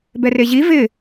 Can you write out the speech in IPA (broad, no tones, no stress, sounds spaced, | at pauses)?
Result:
b ɛ r e ʑ i v ɪ